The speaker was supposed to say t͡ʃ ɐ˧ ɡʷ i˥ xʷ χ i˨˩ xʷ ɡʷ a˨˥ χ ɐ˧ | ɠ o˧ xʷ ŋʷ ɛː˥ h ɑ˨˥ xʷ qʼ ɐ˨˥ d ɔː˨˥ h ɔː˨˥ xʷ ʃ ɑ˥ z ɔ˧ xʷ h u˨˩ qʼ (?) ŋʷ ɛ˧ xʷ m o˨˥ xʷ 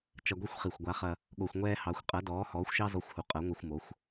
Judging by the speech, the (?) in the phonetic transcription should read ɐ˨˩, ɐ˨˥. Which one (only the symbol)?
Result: ɐ˨˥